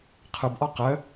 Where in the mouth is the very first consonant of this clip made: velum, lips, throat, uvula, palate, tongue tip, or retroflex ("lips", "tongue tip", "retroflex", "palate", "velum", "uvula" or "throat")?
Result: uvula